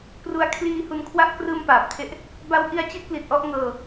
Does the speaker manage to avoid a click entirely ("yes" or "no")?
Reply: yes